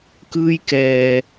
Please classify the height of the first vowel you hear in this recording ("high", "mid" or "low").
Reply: high